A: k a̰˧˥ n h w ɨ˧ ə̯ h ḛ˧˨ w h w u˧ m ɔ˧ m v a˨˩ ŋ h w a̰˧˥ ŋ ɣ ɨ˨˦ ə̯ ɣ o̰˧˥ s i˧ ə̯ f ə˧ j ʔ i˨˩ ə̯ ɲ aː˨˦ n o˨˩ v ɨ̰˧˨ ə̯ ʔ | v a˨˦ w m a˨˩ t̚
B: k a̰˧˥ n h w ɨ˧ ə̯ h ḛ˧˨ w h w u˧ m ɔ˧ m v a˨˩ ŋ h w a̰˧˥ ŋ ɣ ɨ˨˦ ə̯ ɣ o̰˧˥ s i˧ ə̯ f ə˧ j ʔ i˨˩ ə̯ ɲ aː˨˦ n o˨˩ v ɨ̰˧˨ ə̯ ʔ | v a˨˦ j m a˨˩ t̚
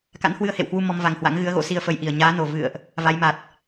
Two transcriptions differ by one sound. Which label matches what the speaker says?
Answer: B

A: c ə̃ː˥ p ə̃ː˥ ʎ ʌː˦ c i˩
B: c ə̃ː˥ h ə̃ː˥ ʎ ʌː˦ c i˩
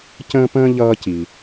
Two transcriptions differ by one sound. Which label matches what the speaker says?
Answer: A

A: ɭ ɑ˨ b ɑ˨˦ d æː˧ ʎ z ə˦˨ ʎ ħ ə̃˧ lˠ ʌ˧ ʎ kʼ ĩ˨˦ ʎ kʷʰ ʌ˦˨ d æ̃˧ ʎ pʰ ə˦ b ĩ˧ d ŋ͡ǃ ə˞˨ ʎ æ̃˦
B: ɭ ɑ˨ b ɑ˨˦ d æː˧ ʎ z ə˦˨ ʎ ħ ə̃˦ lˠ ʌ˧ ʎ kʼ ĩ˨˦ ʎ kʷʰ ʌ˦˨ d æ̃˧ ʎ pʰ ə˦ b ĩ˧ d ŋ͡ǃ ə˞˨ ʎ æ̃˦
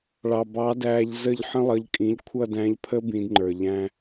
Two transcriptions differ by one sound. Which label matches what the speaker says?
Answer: B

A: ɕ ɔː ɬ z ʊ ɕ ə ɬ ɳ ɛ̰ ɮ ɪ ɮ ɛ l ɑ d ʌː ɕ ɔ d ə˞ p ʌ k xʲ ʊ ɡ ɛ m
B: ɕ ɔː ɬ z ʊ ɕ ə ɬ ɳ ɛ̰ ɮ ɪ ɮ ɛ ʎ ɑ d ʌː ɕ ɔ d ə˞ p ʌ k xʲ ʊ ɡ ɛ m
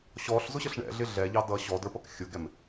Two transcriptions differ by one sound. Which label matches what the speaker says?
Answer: B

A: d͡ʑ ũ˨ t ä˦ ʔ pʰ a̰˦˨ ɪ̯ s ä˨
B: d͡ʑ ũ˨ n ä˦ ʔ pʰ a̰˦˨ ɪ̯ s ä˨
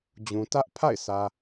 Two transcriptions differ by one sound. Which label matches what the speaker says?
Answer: A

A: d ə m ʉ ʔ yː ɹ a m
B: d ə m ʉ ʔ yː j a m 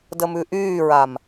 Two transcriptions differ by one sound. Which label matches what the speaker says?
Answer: A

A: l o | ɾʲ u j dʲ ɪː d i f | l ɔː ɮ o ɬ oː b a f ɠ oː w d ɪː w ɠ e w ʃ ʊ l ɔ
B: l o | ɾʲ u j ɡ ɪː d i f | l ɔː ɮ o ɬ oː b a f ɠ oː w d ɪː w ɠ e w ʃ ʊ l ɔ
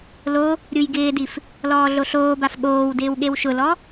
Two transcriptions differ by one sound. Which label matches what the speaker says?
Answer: B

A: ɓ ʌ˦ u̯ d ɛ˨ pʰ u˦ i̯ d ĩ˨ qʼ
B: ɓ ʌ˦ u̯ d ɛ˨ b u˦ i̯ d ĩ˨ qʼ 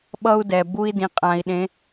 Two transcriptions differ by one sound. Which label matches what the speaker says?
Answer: B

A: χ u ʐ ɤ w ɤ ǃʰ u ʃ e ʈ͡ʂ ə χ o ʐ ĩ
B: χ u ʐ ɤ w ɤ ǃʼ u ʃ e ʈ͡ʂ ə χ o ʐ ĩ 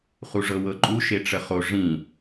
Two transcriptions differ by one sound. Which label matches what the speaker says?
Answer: B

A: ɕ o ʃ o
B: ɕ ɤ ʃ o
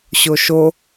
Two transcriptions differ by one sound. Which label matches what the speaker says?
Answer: A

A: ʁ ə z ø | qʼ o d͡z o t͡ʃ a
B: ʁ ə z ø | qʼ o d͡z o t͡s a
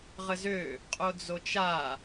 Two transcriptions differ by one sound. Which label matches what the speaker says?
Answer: A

